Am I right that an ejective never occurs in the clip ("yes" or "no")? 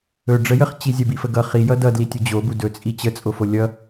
no